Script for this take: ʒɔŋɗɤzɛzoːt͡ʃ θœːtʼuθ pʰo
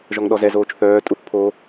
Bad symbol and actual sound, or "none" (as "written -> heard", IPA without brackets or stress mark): ɤ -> ɔ